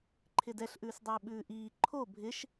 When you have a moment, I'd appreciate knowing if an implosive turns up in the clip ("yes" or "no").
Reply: yes